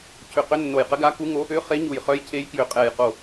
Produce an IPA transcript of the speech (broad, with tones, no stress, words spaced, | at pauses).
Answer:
cʰʏ˧˩qʏ˧˥nːo˧˩jqə˧˥ ɡa˧˥ku˧˥ŋo˧˥ | ʏ˧˥ χe˧˥ɲu˧˩jχœ˧˥j cʰe˧˥jkjʏ˧˩qʼɛ˧˩jqo˧˩